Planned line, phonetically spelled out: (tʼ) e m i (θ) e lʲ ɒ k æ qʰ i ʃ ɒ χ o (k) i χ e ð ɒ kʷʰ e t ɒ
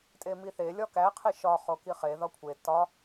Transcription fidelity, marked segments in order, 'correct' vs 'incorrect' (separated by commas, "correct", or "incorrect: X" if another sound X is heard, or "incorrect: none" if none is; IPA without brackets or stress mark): correct, correct, correct